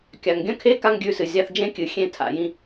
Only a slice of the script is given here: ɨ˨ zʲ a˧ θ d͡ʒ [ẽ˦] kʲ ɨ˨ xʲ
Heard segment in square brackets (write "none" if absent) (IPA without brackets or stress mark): ẽ˦